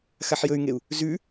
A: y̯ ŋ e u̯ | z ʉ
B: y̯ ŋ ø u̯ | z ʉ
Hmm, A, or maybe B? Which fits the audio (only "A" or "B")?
A